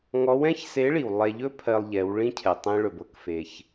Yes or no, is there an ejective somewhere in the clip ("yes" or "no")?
no